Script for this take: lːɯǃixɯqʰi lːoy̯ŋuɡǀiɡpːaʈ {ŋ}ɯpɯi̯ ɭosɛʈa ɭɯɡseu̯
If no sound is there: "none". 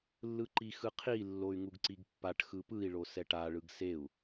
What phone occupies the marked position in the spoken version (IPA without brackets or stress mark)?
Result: x